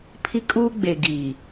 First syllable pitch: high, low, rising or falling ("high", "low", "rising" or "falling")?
high